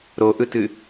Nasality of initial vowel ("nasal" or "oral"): oral